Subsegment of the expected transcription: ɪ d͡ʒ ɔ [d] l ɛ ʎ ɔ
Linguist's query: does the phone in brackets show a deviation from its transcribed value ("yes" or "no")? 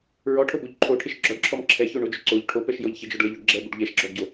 yes